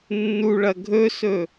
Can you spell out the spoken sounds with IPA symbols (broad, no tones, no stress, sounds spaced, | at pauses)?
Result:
nː u ɭ ɐ ɡʱ ɵ s ɵ